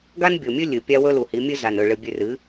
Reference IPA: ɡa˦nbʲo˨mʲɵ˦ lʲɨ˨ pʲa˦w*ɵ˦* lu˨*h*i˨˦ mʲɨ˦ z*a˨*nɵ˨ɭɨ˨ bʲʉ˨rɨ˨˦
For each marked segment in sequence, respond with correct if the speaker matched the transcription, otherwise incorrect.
correct, correct, correct

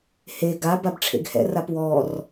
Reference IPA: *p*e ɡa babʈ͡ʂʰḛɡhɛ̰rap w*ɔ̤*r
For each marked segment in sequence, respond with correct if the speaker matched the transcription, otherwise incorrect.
incorrect, incorrect

